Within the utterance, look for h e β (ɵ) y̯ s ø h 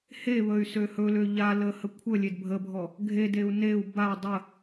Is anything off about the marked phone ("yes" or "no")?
yes